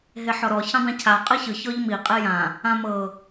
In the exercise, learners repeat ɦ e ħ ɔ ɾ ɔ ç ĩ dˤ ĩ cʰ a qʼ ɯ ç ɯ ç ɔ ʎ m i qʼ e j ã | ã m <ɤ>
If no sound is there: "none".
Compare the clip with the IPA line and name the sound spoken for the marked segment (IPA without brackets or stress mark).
ɤ